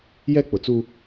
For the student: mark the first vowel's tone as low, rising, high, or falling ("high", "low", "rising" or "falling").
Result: high